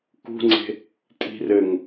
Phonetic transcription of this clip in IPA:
kṳŋ͡ǀe̤ | tʼi̤rɘŋ

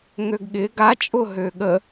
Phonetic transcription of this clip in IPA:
ŋøɡɠɪ ɡat͡ʃʼʊɦø ɠə

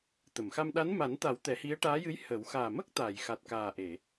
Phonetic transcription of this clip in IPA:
t̪ə˨˩˨mxa˧mɗa˧˥n ma˨˩˦nt̪a˨˩˦w t̪ɛ˨˩˦hi˧˥ə̯ʈaː˧˥jɨ˧˥j hə˨˩˦w xaː˨˩mə˦˥k̚ t̪aː˨˩˨jxa˨˩t̚kaː˨˩ʔe˨˩˨

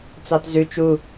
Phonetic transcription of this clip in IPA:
t͡sɑtzʉ t͡ʃu

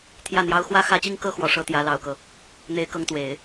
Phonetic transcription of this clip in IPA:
t̪ʰjä˥˩n̪jɑ˥ʊ̯ xwä˥˩xä˥t͡ɕi˥ŋkɤ˥ xwɔ˨˩ʂɤ˥ t̪jä˧˥lɑ˨˩ʊ̯kɤ˦ | n̪e˥ɪ̯kɤ˥ŋt̪we˨˩˦ɪ̯

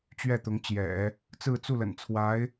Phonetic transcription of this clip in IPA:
t͡ɕɥɛ˥˩t̪ʊ˧˥ŋt͡ɕjɛ̰˨˩˦ | t͡sɹ̩˥˧t͡su˥˩lə̰˨˩nt͡sʰwa˧˥ɪ̯

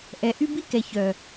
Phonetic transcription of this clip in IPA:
ʔɛ˨ʔy˦ bi˦kɛ˨ çœ˨

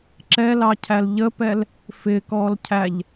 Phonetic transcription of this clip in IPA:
ǁɛlɑcʰæl ʎəpɛl | fɪkɔlcʰæʎ

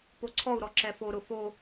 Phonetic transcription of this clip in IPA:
poǀʰɔu̯ɾɔ ǁɛfo ɾʊfo

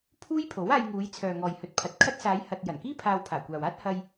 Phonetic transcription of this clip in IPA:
pʰuː˥jpʰo˨˥w aː˧jŋuː˨˧j t͡sʰœː˨ŋɔː˨jhɵ˨˥t̚pʰɐ˨t̚ kʰɐ˥t̚ saː˨˧jhɐ˨t̚ jɐ˨˩nkiː˥ pʰaː˧wpʰaː˨˩kʷaː˨waː˥t̚ hɐ˧j

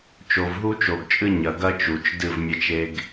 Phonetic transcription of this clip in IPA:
t͡ʃo˨vɦu˦t͡ʃo˨ɡt͡ʃʼɨ˦ ɲɐ˨ɡɐ˦t͡ʃu˨t͡ʃ dɨ˦˨vmʲɐ˦t͡ʃe˦ɡ

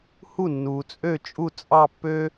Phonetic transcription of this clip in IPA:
hu˥˩nːuː˩t͡sʼø˥˩t͡ʃʼu˥˩ t͡sʼɑ˥˧pːø˥

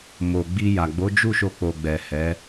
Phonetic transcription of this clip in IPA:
mo˨ɡ͡bi˧ja˨ ɡ͡bo˨˦d͡ʒu˦˨ ʃo˧k͡po˨ ɡ͡bɛ˨hɛ˨˦

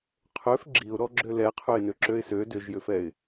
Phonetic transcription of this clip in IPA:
qʰøf ɡ͡ǁiʊ̯ɾɔɡ͡ǁø lɛqʰøɪ̯nøǁøɪ̯ sø dʏʒjʏfɛɪ̯

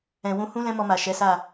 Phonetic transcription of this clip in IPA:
ɛ̃˨wũ˧hũ˦ lɛ̃˦mɔ˧ma˨ ʃɛ˨˦sa˦˨

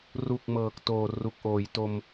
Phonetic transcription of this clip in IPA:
ru˨˩k̚ mɤː˨˩k̚toː˨˩ru˨˩k̚ ʔoː˩˦jto˧m

